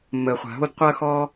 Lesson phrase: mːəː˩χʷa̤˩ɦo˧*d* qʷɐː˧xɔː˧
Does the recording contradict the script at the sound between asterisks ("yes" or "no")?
no